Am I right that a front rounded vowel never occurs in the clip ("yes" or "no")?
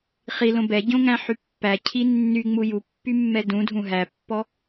no